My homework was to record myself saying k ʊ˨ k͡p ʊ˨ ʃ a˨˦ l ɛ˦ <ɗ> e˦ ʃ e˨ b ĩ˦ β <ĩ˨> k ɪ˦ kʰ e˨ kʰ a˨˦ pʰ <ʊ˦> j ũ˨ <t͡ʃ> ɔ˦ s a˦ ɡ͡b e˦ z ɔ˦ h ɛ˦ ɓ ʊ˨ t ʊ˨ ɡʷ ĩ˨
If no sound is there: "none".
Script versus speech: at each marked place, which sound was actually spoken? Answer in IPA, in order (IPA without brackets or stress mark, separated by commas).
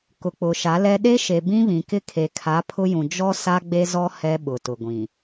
ɗ, ĩ˨, ʊ˦, d͡ʒ